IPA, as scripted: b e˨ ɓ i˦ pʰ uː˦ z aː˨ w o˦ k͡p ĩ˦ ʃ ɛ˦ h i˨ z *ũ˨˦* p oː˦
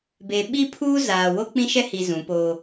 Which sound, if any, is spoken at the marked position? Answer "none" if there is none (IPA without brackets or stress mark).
ũ˨˦